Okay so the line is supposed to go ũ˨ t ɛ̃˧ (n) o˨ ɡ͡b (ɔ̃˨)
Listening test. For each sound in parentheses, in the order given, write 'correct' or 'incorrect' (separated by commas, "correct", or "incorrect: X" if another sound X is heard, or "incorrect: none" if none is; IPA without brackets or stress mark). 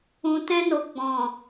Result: correct, correct